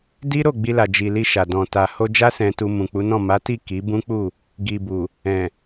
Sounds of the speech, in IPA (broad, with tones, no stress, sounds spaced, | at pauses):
d i˦ ɾ o˦˨ ɡ͡b i˧ l a˨ d͡ʒ i˨ l i˧ ʃ a˨ d ɔ̃˨ t a˨ h o˧ d͡ʒ a˦ s ɛ̃˧ t u˧ m ũ˨ k͡p u˨˦ n ɔ̃˦˨ m a˨˦ t i˦˨ k i˨˦ b ũ˦ k͡p u˦˨ | ɡ i˨ b u˨ | ɛ̃˨